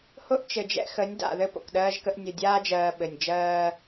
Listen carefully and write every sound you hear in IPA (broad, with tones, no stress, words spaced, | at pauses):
hʊ˦ʔ t͡ʃɘ˨d͡ʒɛ̰˦xə˨˦nʲ da̰˨ðɘ˦ po̰˨kɗɜː˦ʒkə˦ʔ nʲʊ˨dʲaː˦d͡ʒɜː˨ ɓɘ˨nʲ d͡ʒɜː˦